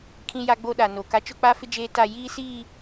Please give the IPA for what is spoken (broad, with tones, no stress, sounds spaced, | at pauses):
kʰ ĩ˦ j a˦ ɡ͡b o˦ ɗ a˨ n o˨ k a˦ t͡ʃ ʊ˦ k͡p a˦ f ɪ˦ d͡ʒ eː˦ t a˦˨ j iː˦ s iː˦˨